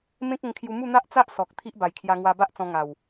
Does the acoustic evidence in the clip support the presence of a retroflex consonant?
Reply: no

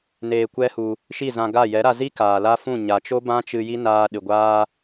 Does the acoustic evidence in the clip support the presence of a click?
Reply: no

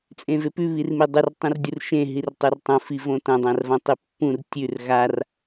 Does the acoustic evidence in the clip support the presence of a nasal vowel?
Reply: yes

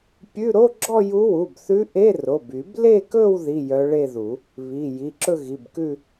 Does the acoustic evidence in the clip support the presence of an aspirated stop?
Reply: no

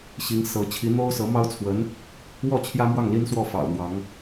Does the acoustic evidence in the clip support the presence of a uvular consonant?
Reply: no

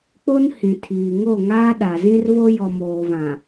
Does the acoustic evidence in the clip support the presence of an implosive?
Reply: yes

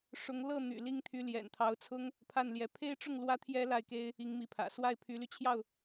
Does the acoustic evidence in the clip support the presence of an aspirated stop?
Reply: yes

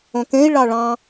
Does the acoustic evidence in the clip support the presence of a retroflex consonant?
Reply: yes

